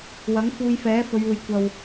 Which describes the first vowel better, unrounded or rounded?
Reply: unrounded